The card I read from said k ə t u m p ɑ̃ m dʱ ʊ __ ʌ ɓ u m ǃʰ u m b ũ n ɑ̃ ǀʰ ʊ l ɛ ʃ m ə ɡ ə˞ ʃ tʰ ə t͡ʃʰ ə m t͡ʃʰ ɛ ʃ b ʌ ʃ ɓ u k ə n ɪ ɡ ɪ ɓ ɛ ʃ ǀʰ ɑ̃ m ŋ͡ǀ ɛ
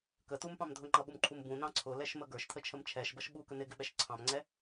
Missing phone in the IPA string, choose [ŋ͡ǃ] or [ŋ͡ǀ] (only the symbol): ŋ͡ǃ